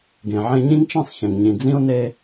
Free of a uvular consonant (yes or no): yes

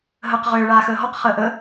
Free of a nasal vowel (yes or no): yes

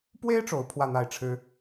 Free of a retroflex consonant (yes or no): no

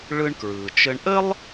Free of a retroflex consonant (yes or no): no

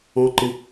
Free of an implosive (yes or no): yes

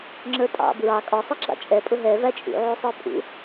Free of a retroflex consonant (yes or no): yes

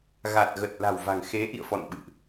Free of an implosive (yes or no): no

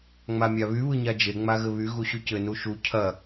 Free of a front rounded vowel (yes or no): no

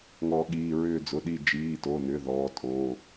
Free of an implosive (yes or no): no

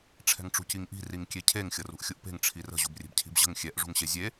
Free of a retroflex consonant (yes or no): no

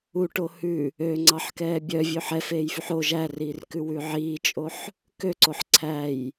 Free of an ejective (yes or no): no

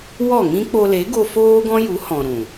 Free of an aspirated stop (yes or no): yes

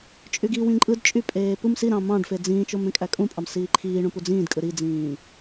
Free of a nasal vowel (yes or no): no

